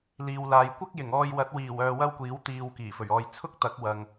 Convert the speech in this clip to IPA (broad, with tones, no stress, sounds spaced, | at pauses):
l iː˨ w l aː˨ j kʷ ɐ˥ k̚ j ɪ˨˩ ŋ ɔː˧ j w ɐ˨˥ t̚ w iː˨˩ w œː˨ w ɐ˥ w kʷ iː˨˥ w t̪ iː˨ w k iː˨˩ f ɵ˨˩ ɥ ɔː˧ j t͡sʰ ʊ˥ k̚ t̪ ɐ˨˥ k̚ w ɐ˨ ŋ